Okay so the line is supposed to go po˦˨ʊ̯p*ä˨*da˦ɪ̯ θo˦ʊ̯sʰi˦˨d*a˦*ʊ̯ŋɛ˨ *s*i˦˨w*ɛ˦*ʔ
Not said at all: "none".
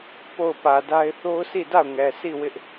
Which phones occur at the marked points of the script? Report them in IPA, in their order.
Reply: ä˨, a˦˨, s, ɪ˦

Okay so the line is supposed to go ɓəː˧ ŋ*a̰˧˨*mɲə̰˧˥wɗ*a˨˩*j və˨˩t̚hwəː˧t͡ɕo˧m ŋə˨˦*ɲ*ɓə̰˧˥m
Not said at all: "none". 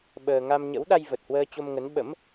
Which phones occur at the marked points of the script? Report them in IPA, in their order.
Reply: a˧, a˧, n

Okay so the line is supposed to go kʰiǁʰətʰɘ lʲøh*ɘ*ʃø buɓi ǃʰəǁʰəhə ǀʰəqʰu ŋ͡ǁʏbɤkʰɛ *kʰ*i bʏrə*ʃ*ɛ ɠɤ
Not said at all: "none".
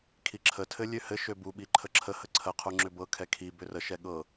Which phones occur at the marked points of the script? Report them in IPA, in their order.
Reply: ɘ, kʰ, ʃ

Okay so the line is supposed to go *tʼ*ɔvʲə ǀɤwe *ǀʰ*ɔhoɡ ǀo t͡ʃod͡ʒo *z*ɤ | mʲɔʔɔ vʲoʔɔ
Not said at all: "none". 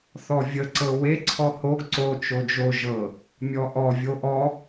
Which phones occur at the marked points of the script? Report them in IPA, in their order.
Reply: θ, ǀʰ, ʒ

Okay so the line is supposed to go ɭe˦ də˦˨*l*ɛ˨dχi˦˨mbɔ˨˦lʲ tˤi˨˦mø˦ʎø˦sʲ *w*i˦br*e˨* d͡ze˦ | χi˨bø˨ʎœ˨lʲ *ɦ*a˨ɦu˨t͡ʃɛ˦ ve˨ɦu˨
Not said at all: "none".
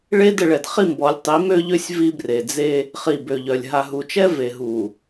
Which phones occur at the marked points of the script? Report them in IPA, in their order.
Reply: ɭ, v, e˨, ɦ

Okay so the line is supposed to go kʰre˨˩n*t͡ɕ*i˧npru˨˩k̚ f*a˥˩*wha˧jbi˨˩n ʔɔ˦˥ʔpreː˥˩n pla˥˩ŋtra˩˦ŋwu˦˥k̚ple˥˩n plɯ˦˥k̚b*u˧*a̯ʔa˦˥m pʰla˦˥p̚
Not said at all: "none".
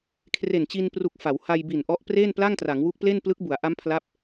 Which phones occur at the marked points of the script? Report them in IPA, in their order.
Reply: t͡ɕ, a˩˦, u˩˦

